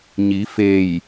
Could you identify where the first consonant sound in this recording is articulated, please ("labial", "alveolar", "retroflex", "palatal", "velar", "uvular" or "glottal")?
palatal